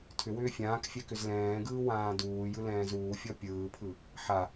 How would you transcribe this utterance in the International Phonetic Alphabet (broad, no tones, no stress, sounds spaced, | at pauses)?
tʰ ʏ w ʏː fʲ ãː k fʲ ɛ k ʏ z l ɛ̃ː ɡ ɯː w ãː d uː j ɯ l ɛ̃ː z uː fʲ ɔ pʲ ɯː pʰ ɯ | ħ a